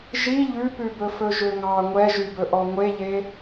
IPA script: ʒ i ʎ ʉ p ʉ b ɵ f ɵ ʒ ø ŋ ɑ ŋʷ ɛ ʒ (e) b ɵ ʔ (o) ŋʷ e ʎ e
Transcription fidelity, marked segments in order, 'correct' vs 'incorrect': incorrect, incorrect

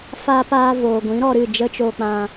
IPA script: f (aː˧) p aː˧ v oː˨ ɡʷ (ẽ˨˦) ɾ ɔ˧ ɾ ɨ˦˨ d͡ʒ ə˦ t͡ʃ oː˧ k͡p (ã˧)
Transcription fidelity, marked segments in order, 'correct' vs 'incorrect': correct, incorrect, correct

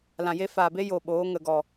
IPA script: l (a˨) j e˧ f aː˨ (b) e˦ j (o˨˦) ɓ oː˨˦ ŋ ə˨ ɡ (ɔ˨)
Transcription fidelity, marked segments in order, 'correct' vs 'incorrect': incorrect, correct, incorrect, correct

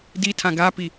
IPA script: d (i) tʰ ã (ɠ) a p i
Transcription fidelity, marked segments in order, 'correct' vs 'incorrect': correct, incorrect

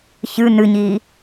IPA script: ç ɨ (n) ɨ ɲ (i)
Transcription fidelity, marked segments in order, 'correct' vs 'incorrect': correct, correct

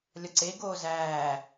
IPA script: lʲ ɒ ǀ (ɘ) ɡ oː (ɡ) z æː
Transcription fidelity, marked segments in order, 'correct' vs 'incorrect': incorrect, incorrect

